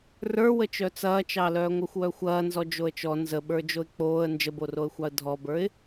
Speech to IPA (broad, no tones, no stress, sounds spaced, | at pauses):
r ə˞ w ə t͡ʃ œ t͡s ɐː t͡ʃ ɑ l œː ŋʷ œ xʷ w œ xʷ ɐː n z ɔ d͡ʒ o ə̯ t͡ʃ ɔ n z ə ɓ ə˞ d͡ʒ o ɪ̯ k͡p oː ə̯ n d͡ʒ ə b o r o ə̯ xʷ ɑ ə̯ dʱ ɔ b ə˞ ɪ̯